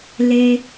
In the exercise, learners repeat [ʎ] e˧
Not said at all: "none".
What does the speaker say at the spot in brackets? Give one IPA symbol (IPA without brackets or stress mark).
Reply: l